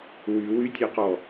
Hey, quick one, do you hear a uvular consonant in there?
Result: yes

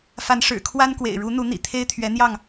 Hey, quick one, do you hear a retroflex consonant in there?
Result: yes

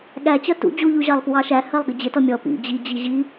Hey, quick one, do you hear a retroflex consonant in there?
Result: no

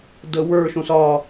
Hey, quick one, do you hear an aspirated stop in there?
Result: no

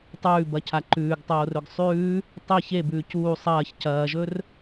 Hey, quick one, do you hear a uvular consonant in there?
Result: no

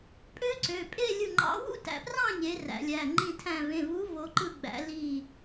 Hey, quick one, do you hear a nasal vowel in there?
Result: yes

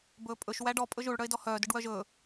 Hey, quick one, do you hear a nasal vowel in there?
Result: no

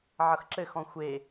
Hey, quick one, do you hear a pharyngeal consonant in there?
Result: yes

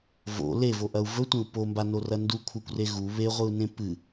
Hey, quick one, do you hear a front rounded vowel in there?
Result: no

